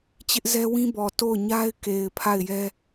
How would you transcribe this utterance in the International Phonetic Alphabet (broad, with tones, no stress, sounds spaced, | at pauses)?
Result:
t͡ɕ ɪ˦ ʔ z ɛ˦ w ĩ˦ b ɔ˨ t o˦˨ ʊ̯ ɲ a˦ ɪ̯ k e˨ ɪ̯ pʰ a˦˨ ɪ̯ j ɛ˦